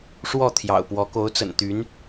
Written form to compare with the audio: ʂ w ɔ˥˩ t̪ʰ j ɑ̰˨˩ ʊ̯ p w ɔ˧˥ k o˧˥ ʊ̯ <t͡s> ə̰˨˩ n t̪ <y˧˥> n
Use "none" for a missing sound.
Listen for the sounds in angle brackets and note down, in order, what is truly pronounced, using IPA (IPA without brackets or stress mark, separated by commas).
t͡s, y˧˥